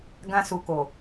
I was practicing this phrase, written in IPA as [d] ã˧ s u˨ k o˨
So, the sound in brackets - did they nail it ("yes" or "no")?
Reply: no